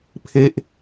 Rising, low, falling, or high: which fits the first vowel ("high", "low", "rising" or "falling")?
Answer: falling